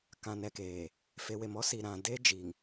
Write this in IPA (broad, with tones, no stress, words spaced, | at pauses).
kã˨nɛ˨keː˨ | fe˨we˨mɔ˦si˨ ɾã˨de˦ d͡ʒi˨ŋ